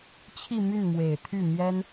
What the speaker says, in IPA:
t͡ɕʰi˥˧my˥˩nmwe˨˩ɪ̯t̪ʰy˥˩ mjɛ˥n

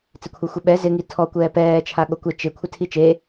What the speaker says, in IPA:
t͡sekʷʰɛxʷeɓɛ zɪ ŋitʰɔ kʷɛːpɛː t͡ʃʰaɠokʷe t͡ʃɪ kʷʰɪtʰit͡ʃe

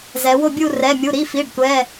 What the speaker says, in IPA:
zɛ˨˦ wo˥˧bʲu˥˧ rɛ˧˥˧mʲu˧˥˧ ɾi˧˥˧fi˧˥˧ɖtʷɛ˧˥˧

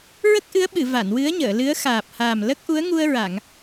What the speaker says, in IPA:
ɹə˦˥k̚ʔɨ˧˥ə̯ɓɨ˨˩˨ va˨˩˨nwɨ˧˥ə̯ɲəː˨˩˨lɨ˧˥ə̯ xaː˨˩p̚haː˨˩m lə˦˥k̚ʔu˧˥ə̯ŋu˧ə̯ɹa˨˩˨ŋ

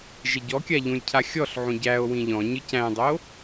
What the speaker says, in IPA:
ʒeɟɔkʲa ʎũlʲcʰaxʲɔɬʕũ ɟæo̯ wĩʎɔ̃ɲɯ cæ̃dˤo

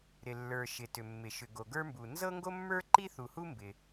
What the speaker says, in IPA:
ɾɪ˩lːə˞˩ ʃɪ˩tʏ˩mːɪ˩ ʃʏ˩ɡo˩ɡə˞˥mbu˩ nzɤ˥ŋɡo˥mːə˞˥ǃi˥ θu˩hu˥ mbɪ˩

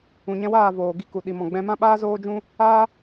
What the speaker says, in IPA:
ũ˨ɲɛ̃˧waː˦˨voː˨ ɡi˧ku˨ ɗi˨mɔ̃˨ɡ͡bɛ̃˧mã˦ ɓaː˦zoː˦d͡ʒũ˦ | aː˦

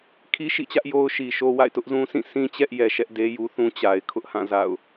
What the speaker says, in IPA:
kʰi˦ʃḭ˦˨t͡ɕä˦ʔ jo˦ʊ̯ʃi˨ʃo˦ wa̰˦˨ɪ̯tʊ˦ʔzũ˦sĩ˦˨ sĩ˦t͡ɕɛ˦ʔ jɛ˨ʃɛ˦ʔde˦ju˦ θũ˦t͡ɕa˨ɪ̯ kʰʊ˦ʔhã˦˨ za̰˦˨ʊ̯

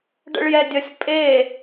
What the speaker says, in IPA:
ɖə̰ɭjɛdʲəsʲ pʼe

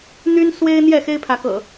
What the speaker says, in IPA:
n̪y˦n swe˦ɪ̯ n̪jɛ˥˨xe˦ɪ̯pʰä˨˦kɤ̰˨˩

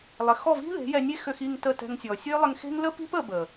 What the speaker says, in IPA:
lˠɪ˨ xɔ˦˨vi̤˦ðe̤˨˦ jɛ˧nʲe˦ xø˧xi˦˨ŋ tə˦˨tɛ̤˧ŋsʲɔ˨ sʲø˦lˠɪ˧ŋxe̤˦ŋ lə˦pi̤˦p ə˧bə˨

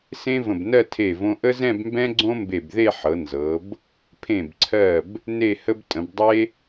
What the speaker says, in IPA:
sẽ˥və̃˧˩bnɜ˥˧ tʰe˧˩võ˧ ʔə˥zɛ̃˥˧bmbɛ̃˥ ɡ͡ǀõ˥mbe˧˩bðe˥˧ħɤ˩˧ nzɤ˩˧b | pʰẽ˧˩bǀʰɜ˧˩b | ne˥˧hə˥b tʼə̃˩˧bdˤe˥

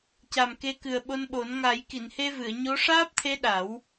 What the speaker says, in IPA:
ca˨˩m ke˧kɨ˨˩ə̯ɓo˧nɓo˨˩˦n ŋa˨˩˦j ki˨˩˨nhe˧vɨ˨˩˨ə̯ ɲo˧˥ ʂaː˦˥p̚t̪ʰe˧˥ ɗa˨˩˦w

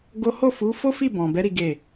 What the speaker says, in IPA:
ɡo˦ ho˦˨fu˨˦ fo˦fi˦˨bɔ̃˨bɛ˨˦ ɾi˦ɡe˦˨

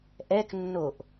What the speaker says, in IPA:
ʔɛknːoʔ

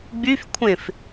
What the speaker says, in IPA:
ɡ͡byfkʷʰẽf

